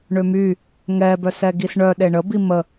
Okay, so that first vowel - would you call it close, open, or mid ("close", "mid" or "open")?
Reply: mid